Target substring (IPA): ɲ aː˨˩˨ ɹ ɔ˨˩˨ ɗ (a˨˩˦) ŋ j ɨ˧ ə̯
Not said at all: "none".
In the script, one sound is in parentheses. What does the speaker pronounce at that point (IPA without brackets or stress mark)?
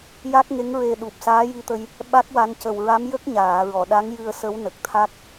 a˧˥